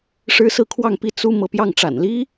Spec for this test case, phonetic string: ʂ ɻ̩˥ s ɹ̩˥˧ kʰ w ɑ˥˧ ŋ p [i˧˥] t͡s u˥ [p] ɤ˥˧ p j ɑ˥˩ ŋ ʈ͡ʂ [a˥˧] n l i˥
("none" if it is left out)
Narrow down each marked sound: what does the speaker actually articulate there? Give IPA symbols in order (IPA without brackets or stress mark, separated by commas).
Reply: i˥˩, m, a̰˨˩